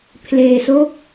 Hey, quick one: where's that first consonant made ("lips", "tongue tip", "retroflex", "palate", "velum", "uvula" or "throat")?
lips